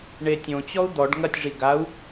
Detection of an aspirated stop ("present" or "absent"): absent